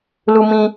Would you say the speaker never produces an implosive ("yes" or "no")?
yes